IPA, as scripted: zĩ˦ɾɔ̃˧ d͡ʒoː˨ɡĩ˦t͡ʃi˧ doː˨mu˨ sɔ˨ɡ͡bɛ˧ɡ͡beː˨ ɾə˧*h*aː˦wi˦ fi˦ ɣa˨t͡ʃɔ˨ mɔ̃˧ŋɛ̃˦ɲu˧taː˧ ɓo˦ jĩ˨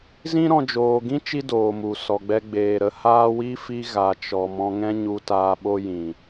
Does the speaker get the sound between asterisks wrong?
no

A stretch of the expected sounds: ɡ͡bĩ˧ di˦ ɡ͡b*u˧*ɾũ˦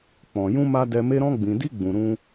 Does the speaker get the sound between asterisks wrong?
yes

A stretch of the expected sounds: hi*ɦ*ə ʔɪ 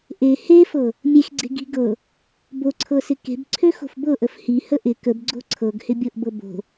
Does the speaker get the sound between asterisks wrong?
yes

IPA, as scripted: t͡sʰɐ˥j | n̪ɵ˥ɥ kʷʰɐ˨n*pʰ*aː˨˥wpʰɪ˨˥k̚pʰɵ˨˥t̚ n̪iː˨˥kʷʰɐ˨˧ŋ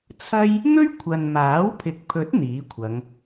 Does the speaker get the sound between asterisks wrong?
yes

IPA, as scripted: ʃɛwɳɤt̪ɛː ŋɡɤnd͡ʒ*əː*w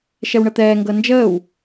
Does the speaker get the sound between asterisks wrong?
no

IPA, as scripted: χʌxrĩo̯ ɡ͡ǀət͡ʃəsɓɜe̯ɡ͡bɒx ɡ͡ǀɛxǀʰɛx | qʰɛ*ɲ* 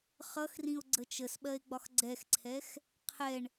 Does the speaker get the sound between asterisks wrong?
yes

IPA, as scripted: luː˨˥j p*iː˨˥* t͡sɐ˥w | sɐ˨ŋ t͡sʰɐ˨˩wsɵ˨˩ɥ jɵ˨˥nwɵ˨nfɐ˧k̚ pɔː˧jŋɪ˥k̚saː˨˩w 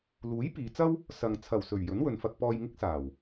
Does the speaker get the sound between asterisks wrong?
yes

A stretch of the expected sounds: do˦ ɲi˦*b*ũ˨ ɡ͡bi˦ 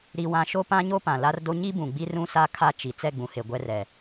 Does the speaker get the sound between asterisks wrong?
no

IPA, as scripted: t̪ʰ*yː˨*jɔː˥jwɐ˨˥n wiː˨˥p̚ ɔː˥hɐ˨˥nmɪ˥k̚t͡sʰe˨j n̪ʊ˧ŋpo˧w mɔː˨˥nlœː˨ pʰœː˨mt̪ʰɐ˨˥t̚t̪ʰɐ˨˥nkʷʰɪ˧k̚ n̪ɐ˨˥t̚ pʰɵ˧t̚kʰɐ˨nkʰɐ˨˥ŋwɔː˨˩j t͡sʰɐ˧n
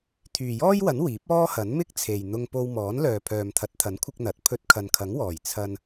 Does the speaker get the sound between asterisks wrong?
no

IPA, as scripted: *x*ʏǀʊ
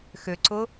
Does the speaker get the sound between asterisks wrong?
no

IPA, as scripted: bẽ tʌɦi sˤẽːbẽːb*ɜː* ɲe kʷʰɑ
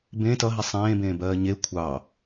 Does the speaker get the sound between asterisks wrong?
no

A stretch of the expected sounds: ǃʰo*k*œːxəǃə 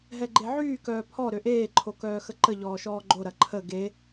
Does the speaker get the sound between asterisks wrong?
no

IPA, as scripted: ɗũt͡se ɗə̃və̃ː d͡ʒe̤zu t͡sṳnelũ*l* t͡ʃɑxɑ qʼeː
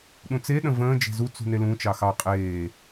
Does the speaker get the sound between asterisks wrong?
yes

